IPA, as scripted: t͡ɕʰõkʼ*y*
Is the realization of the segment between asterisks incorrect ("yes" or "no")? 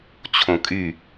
no